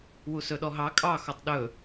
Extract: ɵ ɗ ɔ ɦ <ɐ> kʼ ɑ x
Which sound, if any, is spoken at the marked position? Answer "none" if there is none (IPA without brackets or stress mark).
ɑ